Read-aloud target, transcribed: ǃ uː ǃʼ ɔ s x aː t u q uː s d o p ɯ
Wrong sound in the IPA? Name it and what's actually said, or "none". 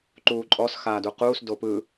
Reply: t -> d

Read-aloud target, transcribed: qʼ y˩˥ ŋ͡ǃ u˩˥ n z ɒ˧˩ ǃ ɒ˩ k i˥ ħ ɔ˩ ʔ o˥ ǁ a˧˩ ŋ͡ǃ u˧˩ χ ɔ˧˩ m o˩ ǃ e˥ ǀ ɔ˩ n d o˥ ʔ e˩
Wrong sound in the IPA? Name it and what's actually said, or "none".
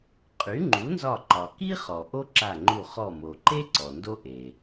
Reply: ħ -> χ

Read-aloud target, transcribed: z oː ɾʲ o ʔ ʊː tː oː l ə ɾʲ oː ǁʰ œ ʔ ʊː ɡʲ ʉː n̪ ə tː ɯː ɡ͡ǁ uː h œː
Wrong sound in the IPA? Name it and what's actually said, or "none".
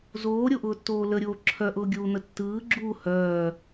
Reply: ʉː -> uː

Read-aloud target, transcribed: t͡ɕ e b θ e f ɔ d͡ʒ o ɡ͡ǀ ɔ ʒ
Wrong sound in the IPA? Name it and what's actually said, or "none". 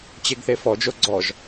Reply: b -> ɡ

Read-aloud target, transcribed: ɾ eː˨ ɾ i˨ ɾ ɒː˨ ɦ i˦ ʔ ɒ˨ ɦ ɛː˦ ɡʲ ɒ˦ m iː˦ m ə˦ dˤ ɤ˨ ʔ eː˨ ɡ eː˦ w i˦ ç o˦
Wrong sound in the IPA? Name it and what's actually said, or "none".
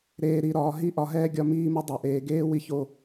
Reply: none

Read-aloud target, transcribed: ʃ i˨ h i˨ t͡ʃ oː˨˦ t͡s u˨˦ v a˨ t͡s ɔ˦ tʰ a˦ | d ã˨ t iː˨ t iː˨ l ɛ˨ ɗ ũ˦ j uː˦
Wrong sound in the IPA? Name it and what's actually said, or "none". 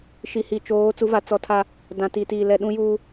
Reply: none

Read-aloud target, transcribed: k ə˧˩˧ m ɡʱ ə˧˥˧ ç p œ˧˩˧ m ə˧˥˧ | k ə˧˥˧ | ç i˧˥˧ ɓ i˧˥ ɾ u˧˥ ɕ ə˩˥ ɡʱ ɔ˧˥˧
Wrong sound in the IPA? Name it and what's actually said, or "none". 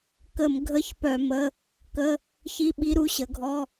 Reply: none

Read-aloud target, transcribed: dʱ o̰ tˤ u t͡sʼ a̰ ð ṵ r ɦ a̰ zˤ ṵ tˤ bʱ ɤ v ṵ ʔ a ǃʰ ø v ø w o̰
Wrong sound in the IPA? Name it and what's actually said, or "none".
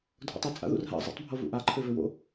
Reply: none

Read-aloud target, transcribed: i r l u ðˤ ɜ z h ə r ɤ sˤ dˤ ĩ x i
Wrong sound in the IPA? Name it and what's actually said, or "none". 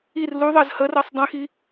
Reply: none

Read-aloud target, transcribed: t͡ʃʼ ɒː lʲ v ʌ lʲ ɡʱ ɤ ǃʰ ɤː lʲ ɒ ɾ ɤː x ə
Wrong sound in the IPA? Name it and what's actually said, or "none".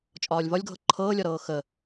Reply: ʌ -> ɒ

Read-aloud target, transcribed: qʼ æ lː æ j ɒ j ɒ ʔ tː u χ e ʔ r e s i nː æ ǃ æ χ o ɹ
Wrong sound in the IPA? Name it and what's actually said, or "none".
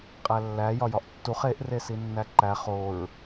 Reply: none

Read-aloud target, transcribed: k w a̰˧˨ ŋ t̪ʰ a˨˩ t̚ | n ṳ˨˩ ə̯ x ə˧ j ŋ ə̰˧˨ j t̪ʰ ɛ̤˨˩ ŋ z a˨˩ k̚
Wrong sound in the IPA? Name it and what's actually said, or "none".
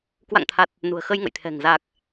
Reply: none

